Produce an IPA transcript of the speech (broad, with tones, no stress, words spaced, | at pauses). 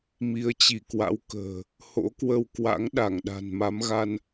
mi˨˦ə̯t͡ɕi˧˩kwa̰˧˥w kə̤ː˨˩ | ho̰˧˥kwə˧wkwa̰˧˥ŋ ɗa˧˩ŋɗa̤˨˩nma˨˦mɣa˧n